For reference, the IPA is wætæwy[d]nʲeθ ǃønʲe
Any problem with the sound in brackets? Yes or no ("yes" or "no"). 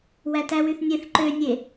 yes